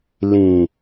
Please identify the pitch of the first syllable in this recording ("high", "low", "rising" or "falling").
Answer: low